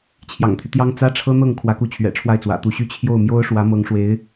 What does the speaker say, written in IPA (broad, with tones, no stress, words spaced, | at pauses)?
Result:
t͡ɕʰjɑ̰˨˩ŋt̪ʰy˦t̪jɑ˥ŋ t͡sä˥ʈ͡ʂʰɤ˥ n̪ɤ˥˩ŋkʰwä˧˥ku˧˥t͡ɕʰɥɛ̰˨˩ ʈ͡ʂʰwa˥˩ɪ̯t͡swä̰˨˩t̪u˧˥ɕy˥ t͡ɕʰjo˥˩ʊ̯ mjo˥ʊ̯ʂwä˧˥ mɤ˧˥ŋʂwe˧˥ɪ̯